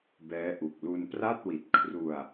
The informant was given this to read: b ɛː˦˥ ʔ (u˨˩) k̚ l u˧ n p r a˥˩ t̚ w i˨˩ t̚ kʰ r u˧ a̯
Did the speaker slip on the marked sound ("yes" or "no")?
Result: no